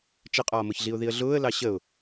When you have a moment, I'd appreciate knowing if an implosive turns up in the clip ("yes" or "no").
no